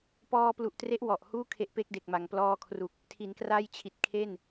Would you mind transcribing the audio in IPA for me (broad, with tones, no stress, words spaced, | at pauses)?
pɔː˧plu˨˩ʔtre˦˥ʔ wɔ˨˩ʔhuː˥˩ kʰe˦˥ʔpe˦˥k̚de˨˩k̚ma˩˦ŋ plɔː˧kʰru˨˩k̚ | tʰi˩˦nkra˥˩jt͡ɕʰi˨˩t̚ kʰe˥˩n